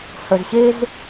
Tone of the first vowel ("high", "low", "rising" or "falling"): low